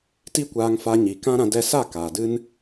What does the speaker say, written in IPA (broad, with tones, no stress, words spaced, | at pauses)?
ti˦kʷaː˧ŋfa˧ ɲi˨kã˦ɾã˧ dɛ˧sa˦˨ kaː˨dɨ˦n